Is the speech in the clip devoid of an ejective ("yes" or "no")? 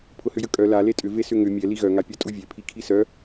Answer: no